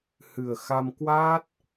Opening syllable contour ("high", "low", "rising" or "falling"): low